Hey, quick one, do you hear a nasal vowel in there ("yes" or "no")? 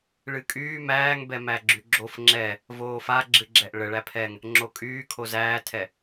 no